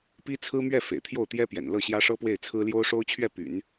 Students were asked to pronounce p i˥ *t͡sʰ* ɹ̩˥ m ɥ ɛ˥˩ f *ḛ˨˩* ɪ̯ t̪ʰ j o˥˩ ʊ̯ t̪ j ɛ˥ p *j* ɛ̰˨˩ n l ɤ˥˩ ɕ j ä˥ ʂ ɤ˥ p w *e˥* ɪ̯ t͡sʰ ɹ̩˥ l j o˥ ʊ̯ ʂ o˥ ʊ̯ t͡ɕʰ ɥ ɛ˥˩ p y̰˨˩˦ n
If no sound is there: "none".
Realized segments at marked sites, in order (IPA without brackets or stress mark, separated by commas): t͡sʰ, ḛ˨˩, j, e˥˩